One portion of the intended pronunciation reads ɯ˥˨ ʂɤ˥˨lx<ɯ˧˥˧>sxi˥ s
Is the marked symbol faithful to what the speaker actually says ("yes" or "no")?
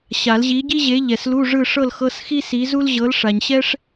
no